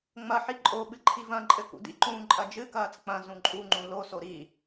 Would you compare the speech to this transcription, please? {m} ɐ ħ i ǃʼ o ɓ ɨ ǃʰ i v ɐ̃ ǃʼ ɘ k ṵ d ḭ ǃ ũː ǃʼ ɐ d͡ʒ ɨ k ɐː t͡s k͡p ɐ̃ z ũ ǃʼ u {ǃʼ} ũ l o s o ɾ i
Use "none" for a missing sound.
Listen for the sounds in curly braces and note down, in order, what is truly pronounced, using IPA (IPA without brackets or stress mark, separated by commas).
ŋ͡m, ŋ͡ǃ